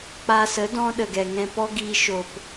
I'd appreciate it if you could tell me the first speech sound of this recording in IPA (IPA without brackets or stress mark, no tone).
k͡p